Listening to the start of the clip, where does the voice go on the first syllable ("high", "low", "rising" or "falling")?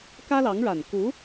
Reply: high